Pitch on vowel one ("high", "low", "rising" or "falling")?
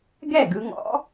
falling